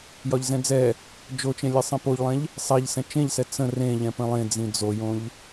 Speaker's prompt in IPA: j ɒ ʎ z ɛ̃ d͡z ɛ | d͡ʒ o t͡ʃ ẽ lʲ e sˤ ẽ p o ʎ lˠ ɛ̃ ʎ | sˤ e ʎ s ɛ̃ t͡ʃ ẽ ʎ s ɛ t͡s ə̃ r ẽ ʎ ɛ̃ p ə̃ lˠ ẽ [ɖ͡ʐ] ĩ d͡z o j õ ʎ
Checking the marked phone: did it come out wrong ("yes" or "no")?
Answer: yes